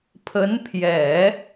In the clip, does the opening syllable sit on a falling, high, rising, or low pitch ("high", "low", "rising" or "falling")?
rising